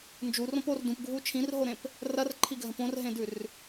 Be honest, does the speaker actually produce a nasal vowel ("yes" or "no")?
yes